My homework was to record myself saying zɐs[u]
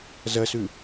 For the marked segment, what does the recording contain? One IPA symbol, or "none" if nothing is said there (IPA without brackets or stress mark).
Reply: ʉ